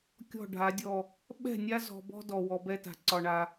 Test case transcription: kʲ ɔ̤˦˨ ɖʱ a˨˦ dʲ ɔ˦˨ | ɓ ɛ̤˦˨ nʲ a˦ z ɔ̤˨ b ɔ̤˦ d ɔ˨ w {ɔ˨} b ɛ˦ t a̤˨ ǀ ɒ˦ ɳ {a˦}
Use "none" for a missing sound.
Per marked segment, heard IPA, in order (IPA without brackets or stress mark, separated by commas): ɔ˨, a˦